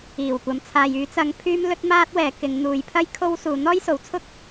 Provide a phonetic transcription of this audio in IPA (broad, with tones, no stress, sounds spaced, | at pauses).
iː˨˩ w kʷ ɐ˨ m t͡sʰ aː˨ j yː˨˧ t͡s ɐ˨˧ ŋ pʰ yː˧ m l ɵ˥ t̚ m aː˥ t̚ w ɛː˨˧ k ɪ˨˧ ŋ n̪ uː˨˧ j pʰ ɐ˥ j kʰ o˥ w s uː˨˧ n̪ ɔː˥ j s o˨˥ w t͡sʰ ʊ˥ k̚